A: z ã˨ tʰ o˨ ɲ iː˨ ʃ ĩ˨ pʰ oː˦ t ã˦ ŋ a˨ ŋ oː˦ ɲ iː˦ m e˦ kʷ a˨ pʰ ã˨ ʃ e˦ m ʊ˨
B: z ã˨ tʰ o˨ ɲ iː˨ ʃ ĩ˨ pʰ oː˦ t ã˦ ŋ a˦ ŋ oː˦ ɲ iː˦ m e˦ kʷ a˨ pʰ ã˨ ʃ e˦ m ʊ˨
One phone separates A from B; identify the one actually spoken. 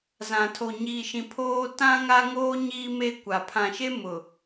B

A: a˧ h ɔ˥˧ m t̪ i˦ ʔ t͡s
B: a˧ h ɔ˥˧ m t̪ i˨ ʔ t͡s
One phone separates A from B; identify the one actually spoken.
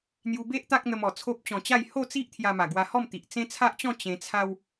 B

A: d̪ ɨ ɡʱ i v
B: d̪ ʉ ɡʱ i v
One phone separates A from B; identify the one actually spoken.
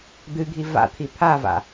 A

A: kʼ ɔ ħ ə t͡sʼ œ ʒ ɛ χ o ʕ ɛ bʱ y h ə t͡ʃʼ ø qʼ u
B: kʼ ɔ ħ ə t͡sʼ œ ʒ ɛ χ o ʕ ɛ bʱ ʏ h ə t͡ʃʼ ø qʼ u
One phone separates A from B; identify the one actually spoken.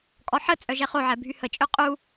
A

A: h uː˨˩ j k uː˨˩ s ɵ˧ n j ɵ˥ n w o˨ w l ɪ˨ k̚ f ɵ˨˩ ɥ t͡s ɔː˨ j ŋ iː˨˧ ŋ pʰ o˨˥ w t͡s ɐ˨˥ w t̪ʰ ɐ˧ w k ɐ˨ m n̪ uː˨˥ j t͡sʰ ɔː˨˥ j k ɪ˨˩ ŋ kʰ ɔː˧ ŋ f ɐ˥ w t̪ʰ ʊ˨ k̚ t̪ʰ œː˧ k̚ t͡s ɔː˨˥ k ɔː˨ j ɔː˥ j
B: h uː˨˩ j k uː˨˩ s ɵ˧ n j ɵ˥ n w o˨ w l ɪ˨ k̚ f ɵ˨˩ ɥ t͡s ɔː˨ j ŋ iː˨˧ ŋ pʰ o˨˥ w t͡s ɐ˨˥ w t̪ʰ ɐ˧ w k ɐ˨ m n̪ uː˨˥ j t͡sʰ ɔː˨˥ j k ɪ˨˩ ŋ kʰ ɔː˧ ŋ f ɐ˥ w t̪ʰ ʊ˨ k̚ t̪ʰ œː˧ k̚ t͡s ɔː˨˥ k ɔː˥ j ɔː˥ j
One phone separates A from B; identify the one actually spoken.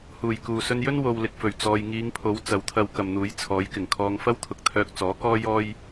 B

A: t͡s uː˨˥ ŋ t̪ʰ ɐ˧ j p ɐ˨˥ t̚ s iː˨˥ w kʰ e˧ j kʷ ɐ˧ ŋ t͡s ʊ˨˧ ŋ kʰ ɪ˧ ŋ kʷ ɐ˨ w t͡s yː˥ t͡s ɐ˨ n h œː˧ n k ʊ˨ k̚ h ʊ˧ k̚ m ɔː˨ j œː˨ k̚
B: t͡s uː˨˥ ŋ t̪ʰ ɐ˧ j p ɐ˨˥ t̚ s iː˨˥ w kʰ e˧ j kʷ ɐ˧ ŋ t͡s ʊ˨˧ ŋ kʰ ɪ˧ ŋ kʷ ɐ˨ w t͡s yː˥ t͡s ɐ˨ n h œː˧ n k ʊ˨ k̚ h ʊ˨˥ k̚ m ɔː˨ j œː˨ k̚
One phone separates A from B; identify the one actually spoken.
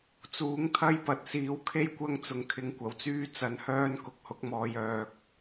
B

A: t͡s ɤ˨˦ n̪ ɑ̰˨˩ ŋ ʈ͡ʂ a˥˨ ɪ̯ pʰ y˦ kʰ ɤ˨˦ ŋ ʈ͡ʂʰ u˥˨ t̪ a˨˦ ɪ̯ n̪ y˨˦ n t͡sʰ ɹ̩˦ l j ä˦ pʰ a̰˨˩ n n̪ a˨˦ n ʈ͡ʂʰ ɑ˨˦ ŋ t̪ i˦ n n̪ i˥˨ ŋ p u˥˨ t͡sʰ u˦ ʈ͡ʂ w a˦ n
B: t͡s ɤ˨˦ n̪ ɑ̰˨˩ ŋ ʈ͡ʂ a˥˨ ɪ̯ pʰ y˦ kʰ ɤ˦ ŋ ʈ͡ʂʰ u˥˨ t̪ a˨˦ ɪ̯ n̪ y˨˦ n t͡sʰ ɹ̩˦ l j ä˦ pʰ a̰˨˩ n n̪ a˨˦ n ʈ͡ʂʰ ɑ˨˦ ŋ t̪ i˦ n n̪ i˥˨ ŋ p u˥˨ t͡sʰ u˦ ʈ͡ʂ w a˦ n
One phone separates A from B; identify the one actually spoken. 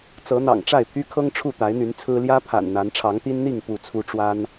B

